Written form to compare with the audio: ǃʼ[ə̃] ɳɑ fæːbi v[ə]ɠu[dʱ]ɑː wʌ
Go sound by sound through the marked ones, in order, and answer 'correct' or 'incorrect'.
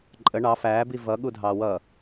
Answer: incorrect, incorrect, correct

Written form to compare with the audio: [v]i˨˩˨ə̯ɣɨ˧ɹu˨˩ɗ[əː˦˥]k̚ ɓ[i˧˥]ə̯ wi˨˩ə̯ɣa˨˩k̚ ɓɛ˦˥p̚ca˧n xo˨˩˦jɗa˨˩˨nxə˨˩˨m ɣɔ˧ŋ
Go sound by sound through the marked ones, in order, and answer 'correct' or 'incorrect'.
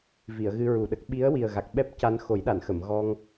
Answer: correct, incorrect, correct

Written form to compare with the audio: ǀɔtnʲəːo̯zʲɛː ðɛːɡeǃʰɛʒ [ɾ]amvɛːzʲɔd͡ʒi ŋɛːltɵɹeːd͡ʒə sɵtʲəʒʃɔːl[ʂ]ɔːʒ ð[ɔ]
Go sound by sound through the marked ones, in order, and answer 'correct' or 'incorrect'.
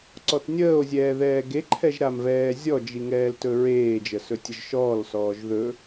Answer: correct, incorrect, incorrect

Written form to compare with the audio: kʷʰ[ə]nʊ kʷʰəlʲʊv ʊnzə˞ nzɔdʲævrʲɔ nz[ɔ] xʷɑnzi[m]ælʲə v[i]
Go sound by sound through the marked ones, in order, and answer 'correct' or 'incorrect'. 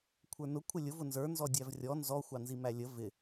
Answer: incorrect, correct, correct, incorrect

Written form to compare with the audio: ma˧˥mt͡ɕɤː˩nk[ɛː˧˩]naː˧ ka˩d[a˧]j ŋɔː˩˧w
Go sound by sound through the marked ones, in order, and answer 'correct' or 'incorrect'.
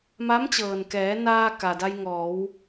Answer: incorrect, correct

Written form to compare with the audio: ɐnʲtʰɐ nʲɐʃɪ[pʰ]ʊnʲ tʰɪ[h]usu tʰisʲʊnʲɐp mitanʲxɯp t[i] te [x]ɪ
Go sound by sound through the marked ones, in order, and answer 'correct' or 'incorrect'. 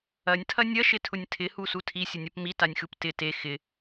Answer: incorrect, correct, incorrect, correct

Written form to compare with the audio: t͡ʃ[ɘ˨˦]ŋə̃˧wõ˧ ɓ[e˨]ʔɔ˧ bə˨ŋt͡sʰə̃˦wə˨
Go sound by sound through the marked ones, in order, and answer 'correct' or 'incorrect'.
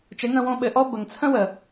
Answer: correct, incorrect

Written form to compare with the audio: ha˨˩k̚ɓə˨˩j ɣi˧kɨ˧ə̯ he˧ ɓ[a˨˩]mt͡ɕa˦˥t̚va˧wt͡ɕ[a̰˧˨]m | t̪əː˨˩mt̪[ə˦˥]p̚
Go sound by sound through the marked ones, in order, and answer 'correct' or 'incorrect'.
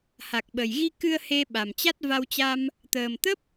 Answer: correct, incorrect, correct

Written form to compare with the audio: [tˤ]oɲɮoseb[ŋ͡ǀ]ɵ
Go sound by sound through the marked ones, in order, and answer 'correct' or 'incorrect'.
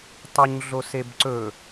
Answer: correct, incorrect

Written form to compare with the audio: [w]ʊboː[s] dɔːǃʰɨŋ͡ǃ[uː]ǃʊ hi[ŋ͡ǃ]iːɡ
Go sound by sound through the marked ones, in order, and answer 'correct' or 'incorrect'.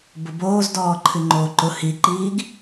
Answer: incorrect, incorrect, incorrect, incorrect

